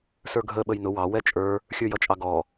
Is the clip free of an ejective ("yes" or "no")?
no